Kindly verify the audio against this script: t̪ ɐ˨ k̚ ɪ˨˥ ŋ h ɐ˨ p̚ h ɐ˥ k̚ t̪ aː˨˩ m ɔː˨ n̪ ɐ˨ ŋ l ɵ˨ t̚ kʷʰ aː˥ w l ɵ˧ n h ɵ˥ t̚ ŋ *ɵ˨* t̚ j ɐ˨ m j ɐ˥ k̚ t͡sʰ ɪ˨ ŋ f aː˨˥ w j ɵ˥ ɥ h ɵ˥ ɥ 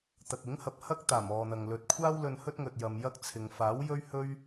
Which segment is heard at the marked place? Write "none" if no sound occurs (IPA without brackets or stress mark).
ɵ˨